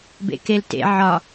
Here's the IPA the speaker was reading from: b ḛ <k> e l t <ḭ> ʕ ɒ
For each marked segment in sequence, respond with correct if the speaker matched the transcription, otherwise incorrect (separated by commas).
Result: correct, incorrect